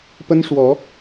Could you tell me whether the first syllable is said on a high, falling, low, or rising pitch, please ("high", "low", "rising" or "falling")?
high